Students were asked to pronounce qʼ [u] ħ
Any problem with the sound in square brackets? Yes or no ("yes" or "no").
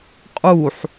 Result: no